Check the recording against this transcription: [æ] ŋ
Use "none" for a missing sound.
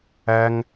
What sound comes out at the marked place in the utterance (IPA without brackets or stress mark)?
æ